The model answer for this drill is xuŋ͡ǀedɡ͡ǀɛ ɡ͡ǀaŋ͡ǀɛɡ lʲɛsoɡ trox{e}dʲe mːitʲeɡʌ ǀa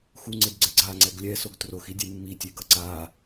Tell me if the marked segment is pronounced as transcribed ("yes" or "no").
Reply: no